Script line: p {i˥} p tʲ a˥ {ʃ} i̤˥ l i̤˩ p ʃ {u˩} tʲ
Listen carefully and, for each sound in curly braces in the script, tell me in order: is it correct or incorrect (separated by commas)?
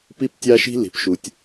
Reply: correct, correct, correct